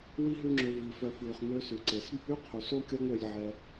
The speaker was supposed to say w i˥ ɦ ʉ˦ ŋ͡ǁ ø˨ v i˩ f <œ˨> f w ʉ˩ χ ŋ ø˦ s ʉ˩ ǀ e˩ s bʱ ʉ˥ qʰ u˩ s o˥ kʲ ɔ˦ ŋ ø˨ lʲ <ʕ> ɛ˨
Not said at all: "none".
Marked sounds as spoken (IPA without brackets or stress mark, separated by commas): œ˨, ʕ